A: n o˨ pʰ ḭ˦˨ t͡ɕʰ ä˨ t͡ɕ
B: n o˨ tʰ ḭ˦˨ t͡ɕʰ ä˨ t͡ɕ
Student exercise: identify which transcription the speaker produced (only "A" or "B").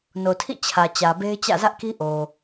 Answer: B